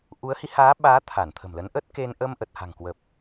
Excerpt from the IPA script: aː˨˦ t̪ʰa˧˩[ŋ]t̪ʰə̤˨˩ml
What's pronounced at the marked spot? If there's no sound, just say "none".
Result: n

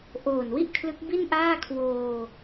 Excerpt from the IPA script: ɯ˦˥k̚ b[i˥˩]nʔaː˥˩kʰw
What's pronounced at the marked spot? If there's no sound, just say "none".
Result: i˥˩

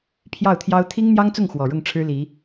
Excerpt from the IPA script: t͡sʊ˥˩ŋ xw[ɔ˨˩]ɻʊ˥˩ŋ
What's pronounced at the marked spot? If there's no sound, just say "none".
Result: ɔ˨˩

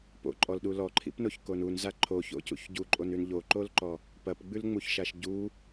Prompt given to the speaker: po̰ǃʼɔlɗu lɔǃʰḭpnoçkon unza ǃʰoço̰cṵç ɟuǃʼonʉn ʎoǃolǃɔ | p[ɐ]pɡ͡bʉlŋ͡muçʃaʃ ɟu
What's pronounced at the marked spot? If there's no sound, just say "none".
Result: ɐ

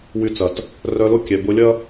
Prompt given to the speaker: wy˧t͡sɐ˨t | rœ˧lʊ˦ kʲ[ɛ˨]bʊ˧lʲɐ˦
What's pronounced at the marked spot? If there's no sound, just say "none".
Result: ɛ˨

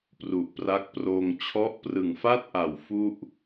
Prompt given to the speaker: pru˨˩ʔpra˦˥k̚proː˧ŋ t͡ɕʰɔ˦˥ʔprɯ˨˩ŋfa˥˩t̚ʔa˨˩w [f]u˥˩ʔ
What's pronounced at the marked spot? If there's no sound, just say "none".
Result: f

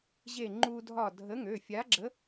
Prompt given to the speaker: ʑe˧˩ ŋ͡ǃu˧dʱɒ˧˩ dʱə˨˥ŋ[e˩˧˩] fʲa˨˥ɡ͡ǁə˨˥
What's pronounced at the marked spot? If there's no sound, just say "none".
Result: ø˩˧˩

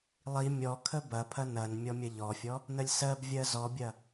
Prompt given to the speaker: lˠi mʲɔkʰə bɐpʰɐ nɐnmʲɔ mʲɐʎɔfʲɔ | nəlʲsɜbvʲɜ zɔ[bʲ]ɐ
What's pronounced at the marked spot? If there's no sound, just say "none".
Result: bʲ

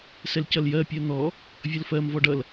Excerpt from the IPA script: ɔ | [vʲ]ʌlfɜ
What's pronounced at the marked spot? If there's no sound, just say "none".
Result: vʲ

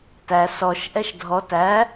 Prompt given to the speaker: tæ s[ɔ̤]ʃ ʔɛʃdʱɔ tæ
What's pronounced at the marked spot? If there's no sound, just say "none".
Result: ɔ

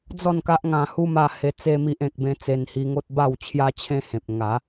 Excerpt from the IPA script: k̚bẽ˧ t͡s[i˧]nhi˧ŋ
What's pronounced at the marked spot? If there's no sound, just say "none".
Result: e˧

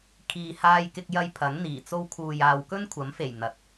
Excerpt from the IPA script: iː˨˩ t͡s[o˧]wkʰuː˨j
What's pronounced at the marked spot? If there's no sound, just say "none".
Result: o˧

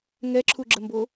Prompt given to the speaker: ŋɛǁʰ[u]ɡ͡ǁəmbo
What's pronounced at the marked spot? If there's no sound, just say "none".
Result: u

